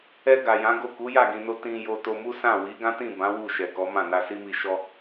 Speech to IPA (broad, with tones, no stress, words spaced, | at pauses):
ɛ˧ ɡa˨jã˨˦ɡo˦˨ ku˨˦ja˦˨ɡĩ˨no˧ tĩ˧jo˧ to˧mu˦sã˦˨ wi˨˦ɡã˦tĩ˦˨bã˨˦ wu˦˨ʃɛ˨ kɔ˨˦mã˦˨ na˧si˦mi˧ ʃɔ˧